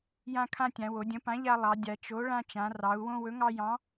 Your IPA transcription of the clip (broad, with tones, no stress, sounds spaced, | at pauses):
j ã˦ kʰ ã˦ tʲ ã˩˧ w o˩˧ dʲ ə̃˨˥ p ã˨˥ ʎ a˦ lˠ ɑ˩˧ dʲ a˩˧ t͡ʃ o˨˥ ɭ ã˦ t͡ʃ ã˩˧ r ɑ˩˧ u̯ w õ˦ w ɵ˨˥ ŋ ɑ˦ j ɑ̃˨˥